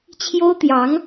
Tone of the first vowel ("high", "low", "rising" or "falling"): high